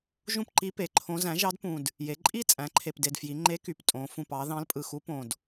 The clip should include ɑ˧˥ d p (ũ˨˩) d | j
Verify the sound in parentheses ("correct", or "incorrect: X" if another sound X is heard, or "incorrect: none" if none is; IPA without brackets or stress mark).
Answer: correct